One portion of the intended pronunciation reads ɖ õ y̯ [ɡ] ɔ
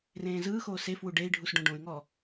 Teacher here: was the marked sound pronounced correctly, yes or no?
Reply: no